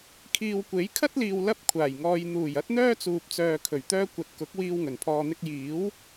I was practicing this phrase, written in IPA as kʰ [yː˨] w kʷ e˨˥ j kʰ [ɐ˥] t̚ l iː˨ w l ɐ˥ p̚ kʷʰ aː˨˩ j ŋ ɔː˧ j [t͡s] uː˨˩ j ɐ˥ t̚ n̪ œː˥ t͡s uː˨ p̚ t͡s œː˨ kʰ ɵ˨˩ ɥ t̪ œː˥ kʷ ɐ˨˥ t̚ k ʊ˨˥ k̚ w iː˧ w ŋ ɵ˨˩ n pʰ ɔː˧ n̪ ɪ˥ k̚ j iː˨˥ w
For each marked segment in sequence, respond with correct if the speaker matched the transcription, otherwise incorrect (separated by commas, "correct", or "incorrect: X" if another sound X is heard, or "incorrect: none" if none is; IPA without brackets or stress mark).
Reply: incorrect: iː˨, correct, incorrect: n̪